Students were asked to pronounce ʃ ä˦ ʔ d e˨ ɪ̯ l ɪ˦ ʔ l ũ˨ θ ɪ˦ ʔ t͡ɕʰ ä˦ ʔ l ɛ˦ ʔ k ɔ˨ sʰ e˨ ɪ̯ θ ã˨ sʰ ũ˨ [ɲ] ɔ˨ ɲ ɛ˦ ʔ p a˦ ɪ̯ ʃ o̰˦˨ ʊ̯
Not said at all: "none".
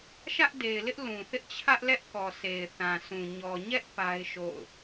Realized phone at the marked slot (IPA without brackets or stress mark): ɲ